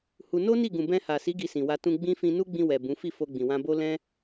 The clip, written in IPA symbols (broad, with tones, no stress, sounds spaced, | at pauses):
h u˧ n o˦ n i˦˨ ɡ ũ˨ b ɛ̃˧ h a˨ s i˨˦ ɡ i˧ s ĩ˨ w a˧ t ũ˧ ɡ͡b ĩ˦ f ĩ˧ n u˦ ɡ͡b ĩ˧ w ɛ˨ b ũ˨˦ f i˦˨ f o˧ ɡ͡b ĩ˨ w ã˧ b o˦ l ɛ̃˦